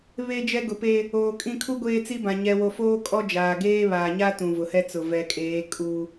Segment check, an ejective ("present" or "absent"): present